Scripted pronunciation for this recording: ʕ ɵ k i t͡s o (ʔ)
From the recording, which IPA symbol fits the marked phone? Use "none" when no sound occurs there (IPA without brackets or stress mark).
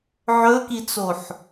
ħ